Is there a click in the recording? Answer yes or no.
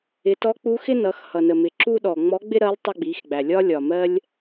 yes